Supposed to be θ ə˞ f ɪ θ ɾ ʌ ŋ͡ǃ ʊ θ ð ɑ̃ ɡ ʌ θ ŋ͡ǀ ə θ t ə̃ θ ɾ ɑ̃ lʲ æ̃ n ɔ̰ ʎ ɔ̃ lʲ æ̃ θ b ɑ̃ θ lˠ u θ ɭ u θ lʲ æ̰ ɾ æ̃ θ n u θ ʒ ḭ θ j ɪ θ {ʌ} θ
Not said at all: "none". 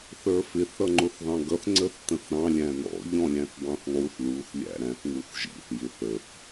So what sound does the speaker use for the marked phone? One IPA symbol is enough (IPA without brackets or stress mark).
ə